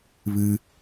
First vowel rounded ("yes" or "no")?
no